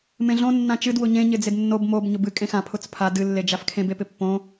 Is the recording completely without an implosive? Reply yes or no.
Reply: yes